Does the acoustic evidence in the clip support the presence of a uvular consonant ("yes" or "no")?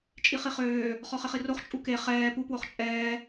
yes